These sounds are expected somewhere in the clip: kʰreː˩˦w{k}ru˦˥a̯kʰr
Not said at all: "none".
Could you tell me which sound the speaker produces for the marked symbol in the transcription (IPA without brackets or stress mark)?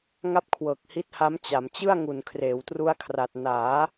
t